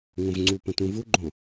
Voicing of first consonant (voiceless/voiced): voiced